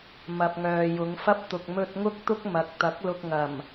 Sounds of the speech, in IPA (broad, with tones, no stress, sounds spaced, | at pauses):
m ɐ˨ p̚ ŋ œː˨ j ʊ˨˧ ŋ f ɐ˥ p̚ t̪ ʊ˨ k̚ m ɵ˧ t̚ ŋ ʊ˥ k̚ t̪ ʊ˥ k̚ m ɐ˨ k̚ t̪ ɐ˨˥ k̚ l ʊ˧ k̚ ŋ ɐ˨˩ m